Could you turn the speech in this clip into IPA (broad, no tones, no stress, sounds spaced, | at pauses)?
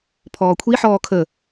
pʰ ɔː kʷʰ i ħ ɔː kʰ ə